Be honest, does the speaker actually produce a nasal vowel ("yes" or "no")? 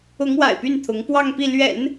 no